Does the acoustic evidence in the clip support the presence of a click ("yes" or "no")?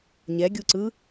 yes